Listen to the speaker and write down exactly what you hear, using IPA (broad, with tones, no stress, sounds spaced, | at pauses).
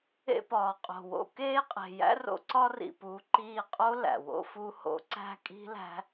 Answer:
ḛ˧ p ɒː˨ qʼ o̤˨ w o̰˧ k eː˦ qʼ e̤˨ j æ̰˦ r o̰˦ ǀ ɒ˦ r ḭ˨ p u˨˦ ǃ iː˧ qʼ o˦ l æ̰˨ w o̰˦ f u˦ h o̰˦ ǀ æ̤˦˨ kʼ i̤˦ l æ̤˦